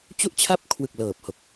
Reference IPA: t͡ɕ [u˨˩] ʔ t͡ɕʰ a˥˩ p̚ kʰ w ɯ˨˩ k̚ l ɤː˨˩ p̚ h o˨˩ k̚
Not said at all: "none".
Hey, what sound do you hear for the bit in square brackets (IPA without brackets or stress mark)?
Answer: u˥˩